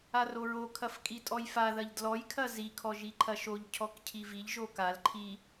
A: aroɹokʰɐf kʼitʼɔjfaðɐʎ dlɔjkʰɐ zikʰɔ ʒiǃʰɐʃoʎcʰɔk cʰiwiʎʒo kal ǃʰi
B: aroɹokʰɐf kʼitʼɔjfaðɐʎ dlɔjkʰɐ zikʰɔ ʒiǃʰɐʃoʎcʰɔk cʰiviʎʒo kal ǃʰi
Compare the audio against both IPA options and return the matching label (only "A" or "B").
B